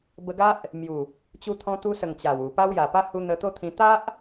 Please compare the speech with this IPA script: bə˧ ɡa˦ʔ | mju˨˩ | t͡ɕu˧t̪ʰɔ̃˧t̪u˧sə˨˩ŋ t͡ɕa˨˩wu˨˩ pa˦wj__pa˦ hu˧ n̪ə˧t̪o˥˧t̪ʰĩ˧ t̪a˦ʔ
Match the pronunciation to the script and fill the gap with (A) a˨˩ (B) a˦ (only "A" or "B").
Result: A